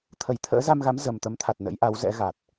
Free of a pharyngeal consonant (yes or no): yes